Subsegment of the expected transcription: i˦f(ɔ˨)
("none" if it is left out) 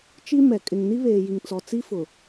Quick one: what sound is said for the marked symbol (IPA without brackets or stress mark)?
ʊ˨